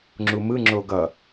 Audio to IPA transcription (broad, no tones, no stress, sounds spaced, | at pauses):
ŋ͡ǁ u m ɯ ŋ͡ǁ o ɡ ʌ